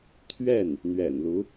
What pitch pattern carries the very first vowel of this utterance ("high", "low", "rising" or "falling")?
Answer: falling